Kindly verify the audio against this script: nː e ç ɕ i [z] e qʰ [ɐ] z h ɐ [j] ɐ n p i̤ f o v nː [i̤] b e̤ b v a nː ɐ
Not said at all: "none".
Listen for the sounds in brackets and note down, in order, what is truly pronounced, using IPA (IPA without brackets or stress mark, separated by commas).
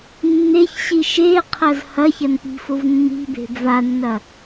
ʃ, ɐ, ç, i̤